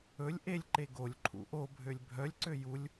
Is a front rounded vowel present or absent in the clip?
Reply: present